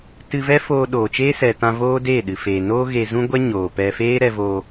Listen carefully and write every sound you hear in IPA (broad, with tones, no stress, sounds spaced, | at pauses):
t ɨ˧ v ɛ˦ f oː˧ ɗ oː˨ t͡ʃ eː˦ s ɛ˨ t ã˧ v oː˦ d eː˦˨ ɗ ɨ˨ f eː˨ n oː˦ ɣ e˧ z ũ˦ ɡʷ ɛ˦ ɲ oː˨ p ɛ˧ f eː˦ ɾ ɛ˧ v o˧